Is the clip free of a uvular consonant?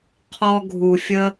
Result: no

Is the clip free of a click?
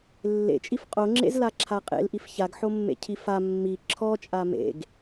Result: no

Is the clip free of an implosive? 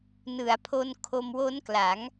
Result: yes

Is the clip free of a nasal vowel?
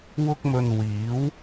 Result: yes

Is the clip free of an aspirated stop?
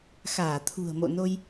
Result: no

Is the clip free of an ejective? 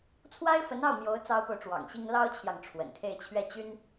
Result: yes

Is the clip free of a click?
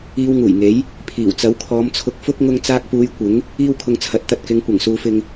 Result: yes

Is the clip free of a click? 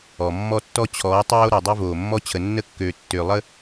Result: yes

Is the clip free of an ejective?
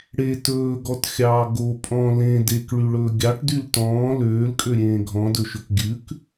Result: no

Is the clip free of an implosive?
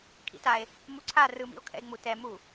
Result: yes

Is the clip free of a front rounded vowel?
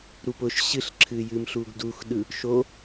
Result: yes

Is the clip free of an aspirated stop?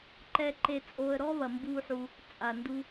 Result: yes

